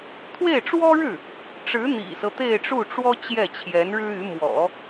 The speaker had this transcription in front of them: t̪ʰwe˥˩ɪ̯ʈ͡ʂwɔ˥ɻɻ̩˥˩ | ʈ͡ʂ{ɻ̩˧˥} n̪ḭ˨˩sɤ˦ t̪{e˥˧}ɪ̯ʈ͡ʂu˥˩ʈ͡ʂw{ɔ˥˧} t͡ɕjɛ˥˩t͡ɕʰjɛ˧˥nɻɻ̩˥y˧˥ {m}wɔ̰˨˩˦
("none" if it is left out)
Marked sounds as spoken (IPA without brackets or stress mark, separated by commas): ɻ̩˧˥, e˥˧, ɔ˥, m